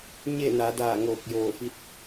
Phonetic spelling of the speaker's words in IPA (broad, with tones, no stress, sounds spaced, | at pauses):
ɲ e˥˨ n a˩˧ d aː˧˩ ŋ oː˧˩ k̚ j oː˧˩ f i˧˥ t̚